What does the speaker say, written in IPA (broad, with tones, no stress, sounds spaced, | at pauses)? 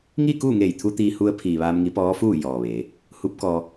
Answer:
ŋ iː˥˨ k uː˥˨ ŋ eː˧˩ j t̪ʰ u˧ t̪ iː˧ h u˧ ə̯ pʰ iː˩ ʋ aː˧ m ŋ i˧˥ p ɔː˧˥ f uː˥˨ j ɔː˩ ʋ eː˩˧ | h u˧˥ p̚ k ɔː˧